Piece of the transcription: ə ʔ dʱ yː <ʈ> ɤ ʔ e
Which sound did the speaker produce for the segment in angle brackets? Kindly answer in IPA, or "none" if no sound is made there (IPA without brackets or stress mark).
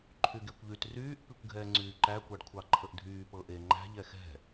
p